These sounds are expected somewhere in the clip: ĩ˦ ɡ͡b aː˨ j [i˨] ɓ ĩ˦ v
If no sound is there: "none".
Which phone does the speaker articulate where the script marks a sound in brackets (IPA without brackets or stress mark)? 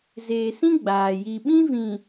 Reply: i˨